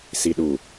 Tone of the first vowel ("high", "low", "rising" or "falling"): low